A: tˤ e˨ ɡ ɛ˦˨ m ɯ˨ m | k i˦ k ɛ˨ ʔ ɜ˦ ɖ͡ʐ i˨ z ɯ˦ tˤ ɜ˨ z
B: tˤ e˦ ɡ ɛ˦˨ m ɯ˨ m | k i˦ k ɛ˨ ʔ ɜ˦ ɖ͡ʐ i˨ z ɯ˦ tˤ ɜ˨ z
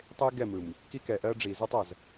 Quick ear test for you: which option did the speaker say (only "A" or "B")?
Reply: B